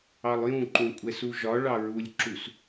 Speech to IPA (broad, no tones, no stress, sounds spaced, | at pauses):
ɑ lˠ j ũ ǃ ũ kʷʼ ɛ s u ʒ ɒ ɭ ɑ ɹ u lʲ ǁ u s